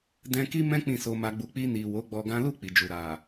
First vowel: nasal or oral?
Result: nasal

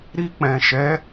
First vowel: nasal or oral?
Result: oral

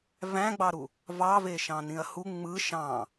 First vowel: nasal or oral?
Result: nasal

